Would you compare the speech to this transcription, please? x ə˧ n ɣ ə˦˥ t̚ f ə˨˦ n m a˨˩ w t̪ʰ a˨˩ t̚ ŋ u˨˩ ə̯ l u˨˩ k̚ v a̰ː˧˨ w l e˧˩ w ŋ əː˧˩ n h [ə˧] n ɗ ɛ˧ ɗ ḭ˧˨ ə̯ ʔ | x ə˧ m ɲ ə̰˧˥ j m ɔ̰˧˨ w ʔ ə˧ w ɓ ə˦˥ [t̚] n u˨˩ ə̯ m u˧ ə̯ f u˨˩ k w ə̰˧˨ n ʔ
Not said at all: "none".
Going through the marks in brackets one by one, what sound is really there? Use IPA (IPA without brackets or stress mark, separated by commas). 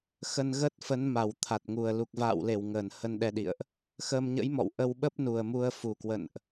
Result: ə˧, p̚